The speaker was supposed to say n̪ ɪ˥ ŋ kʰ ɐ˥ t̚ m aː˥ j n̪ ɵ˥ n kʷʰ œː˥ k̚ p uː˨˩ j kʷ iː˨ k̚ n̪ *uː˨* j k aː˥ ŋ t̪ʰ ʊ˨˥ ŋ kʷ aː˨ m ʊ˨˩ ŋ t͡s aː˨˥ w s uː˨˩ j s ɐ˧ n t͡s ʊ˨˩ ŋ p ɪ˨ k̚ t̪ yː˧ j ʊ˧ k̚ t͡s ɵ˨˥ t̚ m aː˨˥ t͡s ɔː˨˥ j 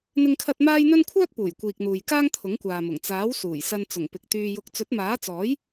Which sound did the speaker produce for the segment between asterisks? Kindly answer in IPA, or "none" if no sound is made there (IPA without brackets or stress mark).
uː˨